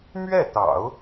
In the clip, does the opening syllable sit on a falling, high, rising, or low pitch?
falling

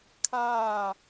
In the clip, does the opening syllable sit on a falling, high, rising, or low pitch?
falling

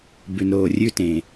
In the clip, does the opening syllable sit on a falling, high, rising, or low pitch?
low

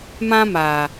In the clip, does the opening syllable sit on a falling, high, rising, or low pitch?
high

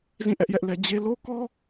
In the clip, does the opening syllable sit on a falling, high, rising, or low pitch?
falling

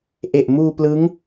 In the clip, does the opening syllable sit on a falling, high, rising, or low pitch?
low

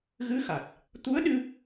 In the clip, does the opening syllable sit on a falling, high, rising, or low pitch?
rising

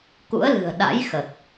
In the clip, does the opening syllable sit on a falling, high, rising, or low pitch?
rising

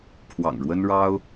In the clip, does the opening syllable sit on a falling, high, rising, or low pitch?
low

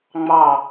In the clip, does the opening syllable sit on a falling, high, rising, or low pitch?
falling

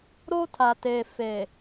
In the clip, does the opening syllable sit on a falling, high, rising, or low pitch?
high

